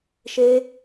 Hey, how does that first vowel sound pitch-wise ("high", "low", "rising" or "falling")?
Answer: high